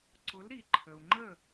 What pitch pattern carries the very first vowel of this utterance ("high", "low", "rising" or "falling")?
rising